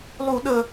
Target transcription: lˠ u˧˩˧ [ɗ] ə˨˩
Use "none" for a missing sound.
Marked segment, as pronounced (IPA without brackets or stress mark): ɗ